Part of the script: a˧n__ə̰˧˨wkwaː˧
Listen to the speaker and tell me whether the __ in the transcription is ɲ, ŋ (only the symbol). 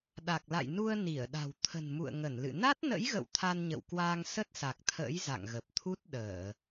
ɲ